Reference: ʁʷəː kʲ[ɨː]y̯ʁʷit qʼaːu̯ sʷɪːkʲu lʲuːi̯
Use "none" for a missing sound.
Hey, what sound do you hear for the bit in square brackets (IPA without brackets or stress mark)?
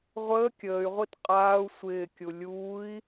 əː